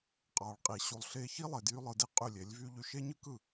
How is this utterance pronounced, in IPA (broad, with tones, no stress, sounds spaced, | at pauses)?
qʼ ɑ˨ ɭ qʼ i˨ ɕ u˧ lˠ ɬ e˦ ç i˦ lˠ e˨ d j y˦ lˠ ɯ˧ d i˦ qʼ y˦˨ lʲ e˨˦ lʲ v y˦ ʎ y˧ ʃ e˦ ɲ ɯ˦ k ɯ˦˨